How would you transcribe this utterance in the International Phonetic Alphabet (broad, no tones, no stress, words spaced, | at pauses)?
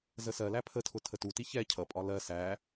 zəsɜlæ pʰətʰʊ tʰətuti çɛ cʰʌpʼɒ lɜ sæ